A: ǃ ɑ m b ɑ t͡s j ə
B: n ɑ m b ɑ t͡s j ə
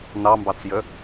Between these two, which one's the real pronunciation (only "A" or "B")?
B